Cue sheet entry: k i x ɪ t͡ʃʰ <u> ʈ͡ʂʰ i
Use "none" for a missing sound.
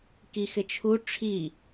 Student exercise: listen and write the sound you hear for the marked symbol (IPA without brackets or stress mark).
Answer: u